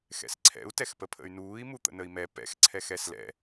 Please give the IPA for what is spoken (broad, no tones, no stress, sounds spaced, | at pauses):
x ɛ̰ s ǀʰ ɛ̰ u̯ t ɛ x p ə pʰ ə̰ y̯ n uː i̯ m u t̪ ə̰ n ə i̯ m ɛ p ɛ̰ x ǀʰ ɛ x ɛ s l ɛ̰